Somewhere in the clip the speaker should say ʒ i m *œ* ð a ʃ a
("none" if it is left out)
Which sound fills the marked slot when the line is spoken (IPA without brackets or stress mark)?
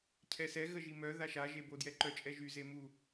œ